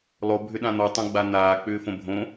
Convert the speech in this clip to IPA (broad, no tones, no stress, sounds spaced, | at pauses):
lˠ o bʱ ʏ ɗ ã n̪ ɔ tˤ õ ɡ͡b a n̪ aː k͡p ʏː f õ bʱ õ